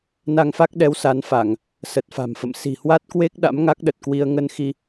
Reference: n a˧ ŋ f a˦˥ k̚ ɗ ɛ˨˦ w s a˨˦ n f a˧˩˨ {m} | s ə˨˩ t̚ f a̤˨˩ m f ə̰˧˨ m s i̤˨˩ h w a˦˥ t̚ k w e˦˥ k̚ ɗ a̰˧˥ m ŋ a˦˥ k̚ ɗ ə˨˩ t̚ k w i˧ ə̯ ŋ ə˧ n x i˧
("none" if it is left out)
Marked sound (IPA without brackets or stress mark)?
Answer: ŋ